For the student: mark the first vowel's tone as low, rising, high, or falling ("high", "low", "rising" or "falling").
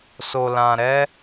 low